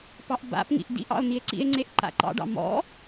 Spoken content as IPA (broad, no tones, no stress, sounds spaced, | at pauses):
p ɑ ʔ b a̰ p ŋ ḭ ʔ d ḭ ʔ ɑ̰ o̯ n̪ i e̯ ǀ ḭ e̯ ŋ͡ǀ e ʔ ǃ a̰ ǃ ɑ̰ ɖ ɑ̰ m ɔ̰